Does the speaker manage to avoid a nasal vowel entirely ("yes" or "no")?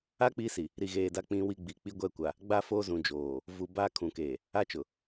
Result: no